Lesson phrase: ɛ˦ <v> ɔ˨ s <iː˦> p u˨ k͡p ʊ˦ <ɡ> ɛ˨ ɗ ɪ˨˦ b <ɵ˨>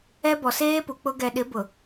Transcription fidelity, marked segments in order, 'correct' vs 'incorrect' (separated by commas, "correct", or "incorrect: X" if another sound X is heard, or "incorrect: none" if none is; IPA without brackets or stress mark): incorrect: b, incorrect: eː˦, correct, incorrect: ʊ˨